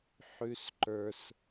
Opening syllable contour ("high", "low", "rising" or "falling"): high